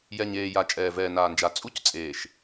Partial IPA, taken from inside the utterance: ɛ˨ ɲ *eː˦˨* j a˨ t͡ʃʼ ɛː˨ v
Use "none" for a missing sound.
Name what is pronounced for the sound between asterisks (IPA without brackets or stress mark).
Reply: eː˨